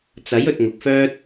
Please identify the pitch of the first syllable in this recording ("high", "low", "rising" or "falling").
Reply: rising